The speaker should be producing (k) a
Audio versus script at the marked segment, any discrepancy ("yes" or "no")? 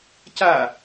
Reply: yes